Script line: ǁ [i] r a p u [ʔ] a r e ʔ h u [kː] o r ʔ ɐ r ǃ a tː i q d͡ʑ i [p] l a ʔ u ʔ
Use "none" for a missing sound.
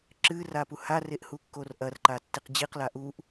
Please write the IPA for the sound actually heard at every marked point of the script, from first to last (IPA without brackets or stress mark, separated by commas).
ɨ, h, kː, q